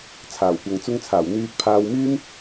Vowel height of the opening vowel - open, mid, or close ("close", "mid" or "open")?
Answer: open